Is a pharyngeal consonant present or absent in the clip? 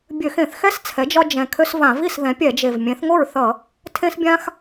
absent